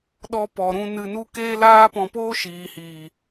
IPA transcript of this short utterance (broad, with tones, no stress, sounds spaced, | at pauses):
ɗ ɔ˦ p ɔ˨ ɾ ũ˧ n ɨ˧ n u˦ k eː˦ l aː˦ p ɔ̃˧ p oː˦ ʃ iː˨ h iː˨